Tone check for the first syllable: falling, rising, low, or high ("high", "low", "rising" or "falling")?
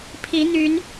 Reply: rising